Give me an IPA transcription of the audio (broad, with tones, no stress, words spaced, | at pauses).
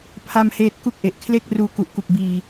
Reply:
pʰa˥˩mheː˥˩t̚ ku˥˩k̚ʔe˨˩ʔ kʰle˥˩k̚ruː˧ ku˨˩ʔku˨˩k̚ biː˧